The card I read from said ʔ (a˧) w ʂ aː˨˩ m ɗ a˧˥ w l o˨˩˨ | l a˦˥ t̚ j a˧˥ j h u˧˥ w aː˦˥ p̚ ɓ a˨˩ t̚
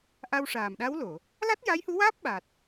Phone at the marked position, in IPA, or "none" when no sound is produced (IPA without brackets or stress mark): a˧